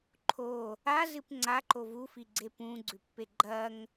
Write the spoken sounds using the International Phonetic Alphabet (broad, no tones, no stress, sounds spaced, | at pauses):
ǃʰ o | a z ɨ p ŋ͡ǀ a ǃ o v u f i ɡ͡ǀ e p ũ ɡ͡ǀ ʉ pː e ɡ͡ǃ ɐ ŋ